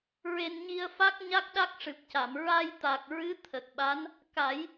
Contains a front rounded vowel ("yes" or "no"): no